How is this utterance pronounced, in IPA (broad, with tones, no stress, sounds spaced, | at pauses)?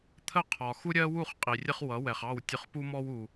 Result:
t̪ʰ ə˥˩ qʰ ɒ˩ x u˥ ɾʲ ɜ˥ w u˥˩ χ qʼ i˩ rʲ ə˥ χ w ʌ˩˥ w ɛ˩ χ ɑ˥˩ w tʲ ʊ˧ χ p u˥ m ɔ˥ w u˩